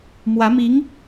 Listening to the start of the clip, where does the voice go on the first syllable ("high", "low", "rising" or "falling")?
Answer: rising